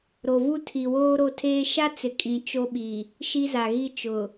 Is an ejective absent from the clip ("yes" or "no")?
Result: no